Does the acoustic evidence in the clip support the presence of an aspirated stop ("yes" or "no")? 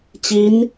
no